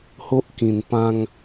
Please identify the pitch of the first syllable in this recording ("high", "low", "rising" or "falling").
high